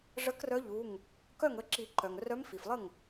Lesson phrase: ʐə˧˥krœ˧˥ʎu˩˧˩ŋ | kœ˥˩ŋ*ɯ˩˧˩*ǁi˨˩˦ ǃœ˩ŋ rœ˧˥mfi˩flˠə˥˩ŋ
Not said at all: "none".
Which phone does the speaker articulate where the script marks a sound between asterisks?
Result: ə˩˧˩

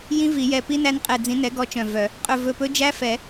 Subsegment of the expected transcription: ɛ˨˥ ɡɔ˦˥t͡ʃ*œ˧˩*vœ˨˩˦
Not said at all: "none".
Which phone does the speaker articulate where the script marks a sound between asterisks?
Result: œ̃˧˩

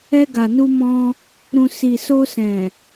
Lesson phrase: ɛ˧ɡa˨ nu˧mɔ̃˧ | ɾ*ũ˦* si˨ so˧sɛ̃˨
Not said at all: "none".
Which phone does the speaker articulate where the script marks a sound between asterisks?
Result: ũ˨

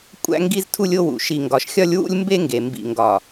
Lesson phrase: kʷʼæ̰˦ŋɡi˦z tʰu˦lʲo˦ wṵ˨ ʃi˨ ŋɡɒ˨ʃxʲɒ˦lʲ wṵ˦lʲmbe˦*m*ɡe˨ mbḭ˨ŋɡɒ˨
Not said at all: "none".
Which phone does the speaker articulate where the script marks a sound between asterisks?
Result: ŋ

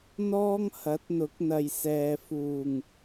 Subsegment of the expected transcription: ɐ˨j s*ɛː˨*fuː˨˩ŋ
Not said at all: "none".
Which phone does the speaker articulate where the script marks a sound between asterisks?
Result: ɛː˨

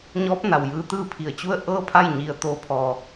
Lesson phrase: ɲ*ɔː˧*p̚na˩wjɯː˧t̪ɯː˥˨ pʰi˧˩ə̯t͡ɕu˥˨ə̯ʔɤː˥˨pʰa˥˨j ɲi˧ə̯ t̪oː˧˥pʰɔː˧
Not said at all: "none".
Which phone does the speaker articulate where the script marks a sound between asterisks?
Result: ɔː˧˥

